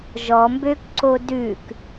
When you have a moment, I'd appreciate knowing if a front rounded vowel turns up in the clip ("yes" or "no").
yes